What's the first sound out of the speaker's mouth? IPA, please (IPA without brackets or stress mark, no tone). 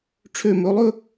ʈ͡ʂʰ